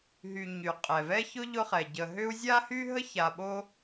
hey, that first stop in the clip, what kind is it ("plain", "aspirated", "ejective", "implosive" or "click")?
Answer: ejective